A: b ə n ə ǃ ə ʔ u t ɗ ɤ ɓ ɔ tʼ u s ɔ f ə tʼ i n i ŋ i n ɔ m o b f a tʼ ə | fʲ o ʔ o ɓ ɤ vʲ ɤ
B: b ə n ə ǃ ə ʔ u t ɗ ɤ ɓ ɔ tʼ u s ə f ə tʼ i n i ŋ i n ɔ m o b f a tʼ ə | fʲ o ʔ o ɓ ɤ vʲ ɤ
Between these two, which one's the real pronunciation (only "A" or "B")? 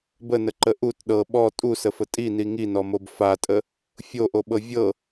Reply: B